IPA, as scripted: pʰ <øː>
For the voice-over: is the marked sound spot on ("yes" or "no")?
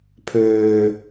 yes